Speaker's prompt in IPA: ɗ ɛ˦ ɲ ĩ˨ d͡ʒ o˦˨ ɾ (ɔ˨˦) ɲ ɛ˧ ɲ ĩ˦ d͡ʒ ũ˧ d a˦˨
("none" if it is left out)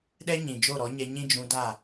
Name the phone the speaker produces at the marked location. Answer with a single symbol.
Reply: ɔ˨˦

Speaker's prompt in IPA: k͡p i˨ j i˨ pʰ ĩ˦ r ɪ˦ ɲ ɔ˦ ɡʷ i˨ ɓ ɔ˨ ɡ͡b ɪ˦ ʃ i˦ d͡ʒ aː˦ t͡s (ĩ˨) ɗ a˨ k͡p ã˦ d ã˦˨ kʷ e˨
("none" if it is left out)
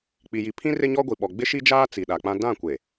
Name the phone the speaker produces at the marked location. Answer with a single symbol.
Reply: i˨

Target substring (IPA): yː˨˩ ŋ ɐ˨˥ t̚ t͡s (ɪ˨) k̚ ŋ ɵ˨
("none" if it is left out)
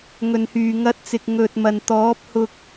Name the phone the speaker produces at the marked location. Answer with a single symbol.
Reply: ɪ˨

